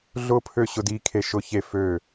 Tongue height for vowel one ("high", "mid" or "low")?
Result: high